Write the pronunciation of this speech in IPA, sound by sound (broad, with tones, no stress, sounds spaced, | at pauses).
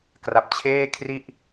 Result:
k r a˨˩ p̚ t͡ɕʰ eː˥˩ kʰ r i˥˩ ʔ